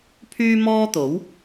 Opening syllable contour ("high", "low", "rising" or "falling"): high